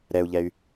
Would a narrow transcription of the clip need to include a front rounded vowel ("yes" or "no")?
yes